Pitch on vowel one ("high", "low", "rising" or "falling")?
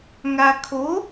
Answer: low